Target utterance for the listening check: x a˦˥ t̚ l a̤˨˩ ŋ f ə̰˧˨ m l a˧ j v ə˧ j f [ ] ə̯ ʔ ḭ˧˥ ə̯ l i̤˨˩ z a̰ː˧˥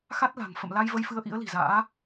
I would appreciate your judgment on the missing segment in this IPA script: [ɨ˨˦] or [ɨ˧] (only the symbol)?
ɨ˨˦